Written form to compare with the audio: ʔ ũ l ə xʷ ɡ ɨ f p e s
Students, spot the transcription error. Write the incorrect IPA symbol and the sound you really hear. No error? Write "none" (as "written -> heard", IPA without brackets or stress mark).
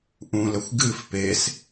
none